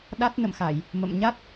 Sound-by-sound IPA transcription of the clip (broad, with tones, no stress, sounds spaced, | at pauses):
ɗ a˦˥ t̚ n ə̰˧˨ m x a˧˩˨ j | m ə̰˧˨ m ɲ a˦˥ t̚